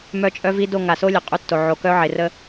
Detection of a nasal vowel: absent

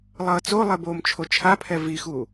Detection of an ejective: absent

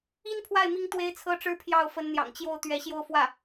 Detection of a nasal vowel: absent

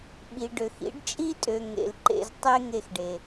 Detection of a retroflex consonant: present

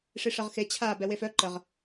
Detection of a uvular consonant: present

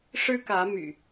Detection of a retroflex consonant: present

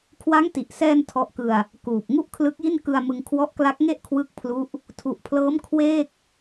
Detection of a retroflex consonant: absent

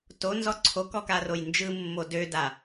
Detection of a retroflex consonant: absent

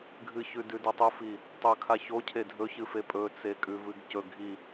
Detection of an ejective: present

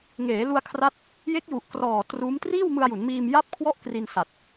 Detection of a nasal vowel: absent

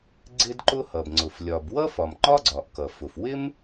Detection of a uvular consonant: absent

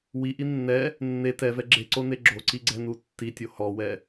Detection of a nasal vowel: absent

